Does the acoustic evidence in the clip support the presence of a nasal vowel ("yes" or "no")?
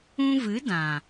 yes